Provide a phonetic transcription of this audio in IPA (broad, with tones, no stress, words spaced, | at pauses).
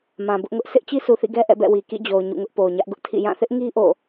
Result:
mã˨bʊ˦ʔŋʊ˦ʔ sʰɪ˦ʔ t͡ɕi˦sʰu˨θḭ˦˨ɡɛ˦ ʔɛ̰˦˨bɛ̰˦˨wi˨ kḭ˦˨d͡ʑo˨ʊ̯ ɲṵ˦˨ŋʊ˦ʔ po˨ʊ̯ɲä˦ʔɡʊ˦ʔtʰḭ˦˨ jã˦˨θɪ˦ʔŋi˦ ʔo̰˦˨